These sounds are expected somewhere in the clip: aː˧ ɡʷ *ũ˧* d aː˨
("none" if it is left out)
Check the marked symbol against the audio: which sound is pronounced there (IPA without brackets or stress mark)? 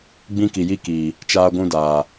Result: ũ˧